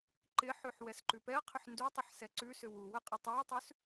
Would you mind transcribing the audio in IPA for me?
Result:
ǃ ɪ ħ ʉ ħ w ɛ s ǃ ʉ p ɛ ɐ̯ qʰ ʏ ħ n d u tˤ ə ħ s ɛ ǀ ʉ s ʏ w u w ə qʼ ə tˤ u ɐ̯ tˤ ʉ s

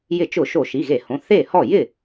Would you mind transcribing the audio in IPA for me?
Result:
j ɪ˧˩˧ t͡ʃ ʊ˧˩˧ ʃ o˧˩˧ ʃ i˩˧˩ ɣ e˧˩˧ h õ˩˧˩ θ e˥˩ h ɔ˥˩ j ɪ˥˩

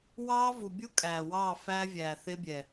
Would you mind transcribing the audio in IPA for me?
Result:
w ɑː˦ v u˨ bʲ u˦ kʼ æː˨ w ɑː˦˨ f æː˦ vʲ æː˨ θ ɪː˦ bʲ ɛ˨

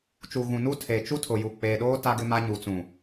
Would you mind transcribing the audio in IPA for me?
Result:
t͡ʃ u˨ ɣ ũ˨ n u˦ tʰ e˨ t͡ʃ u˦ tʰ ʊ˨ j u˨ k͡p eː˨ ɗ oː˦ t a˦ ɡ ɪ˦ m a˦ ɲ u˨ t͡s ũ˨

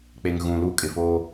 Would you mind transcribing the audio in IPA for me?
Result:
k͡p e˨ ŋ ɣ ũ˨ l u˦ kʼ ɪ˨ f oː˦

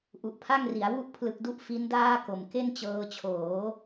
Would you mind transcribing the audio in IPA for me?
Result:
ʔ u˨˩ ʔ pʰ a˥˩ ŋ r i˩˦ a̯ w u˦˥ ʔ pʰ l ɯ˨˩ k̚ d u˦˥ ʔ f i˦˥ n d aː˥˩ k o˨˩ m k e˥˩ n t͡ɕ ɤː˧ t͡ɕʰ oː˩˦

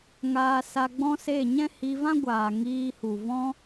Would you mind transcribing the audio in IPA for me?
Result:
ŋ aː˧ s a˧ ɡ͡b ɔ̃˦ s e˦˨ ɲ ɛ̃˦ h i˧ v ã˦ ɡʷ aː˨ ŋ iː˧ h u˨ v ɔ̃˧

